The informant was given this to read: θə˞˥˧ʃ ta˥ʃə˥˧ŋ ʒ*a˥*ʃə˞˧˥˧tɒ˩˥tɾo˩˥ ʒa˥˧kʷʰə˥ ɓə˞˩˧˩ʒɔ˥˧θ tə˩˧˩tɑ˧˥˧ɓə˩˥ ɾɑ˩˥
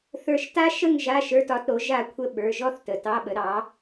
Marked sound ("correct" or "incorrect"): incorrect